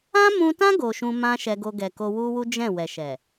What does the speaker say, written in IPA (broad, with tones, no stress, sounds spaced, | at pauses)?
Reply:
ã˦ m ũ˧ t ã˦ ɡ o˧ ʃ ũ˦ m ã˦ ʃ ɛ˧ ɡ o˧ ɡ ɛ˨ k o˧ w u˦ w u˦ d͡ʒ ɛ̃˦˨ w ɛ˨ ʃ ɛ˨